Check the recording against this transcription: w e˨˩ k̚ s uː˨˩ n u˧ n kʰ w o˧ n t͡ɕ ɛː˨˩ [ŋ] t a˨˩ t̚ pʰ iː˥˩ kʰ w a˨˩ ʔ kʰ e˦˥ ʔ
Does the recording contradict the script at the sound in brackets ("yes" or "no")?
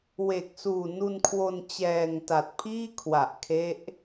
no